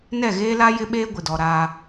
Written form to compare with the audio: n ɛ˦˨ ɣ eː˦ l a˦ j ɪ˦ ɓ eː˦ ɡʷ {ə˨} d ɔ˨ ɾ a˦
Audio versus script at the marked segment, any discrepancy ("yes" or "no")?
yes